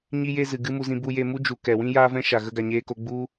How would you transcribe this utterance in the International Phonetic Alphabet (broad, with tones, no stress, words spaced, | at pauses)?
ɲi˦je˦zɨ˨ ɡɨ˦mu˧zĩ˧ bu˧je˧mu˦ d͡ʒu˨kɛ˨wĩ˦ jaː˦vɛ̃˦ʃa˨ ɣə˧ɡa˨ɲeː˧ko˧ ɡ͡bu˦